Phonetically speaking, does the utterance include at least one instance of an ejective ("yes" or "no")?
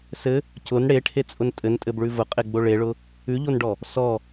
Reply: yes